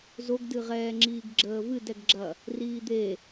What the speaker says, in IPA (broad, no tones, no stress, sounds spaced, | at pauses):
z o ɡ d ɨ ʁ ɛː ŋ͡ǁ iː ɡ ɡ͡ǁ əː v ɨ d ɛ ɡ ɡ͡ǁ ɐ | r iː d̪ e